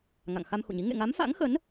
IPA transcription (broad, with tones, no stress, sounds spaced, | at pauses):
ŋ a̰˧˨ ŋ x a˧ m x ṵ˧˨ ɲ i˨˦ ŋ ḛ˧˨ ŋ a˨˦ m f a̰˧˥ ŋ x ə˨˦ n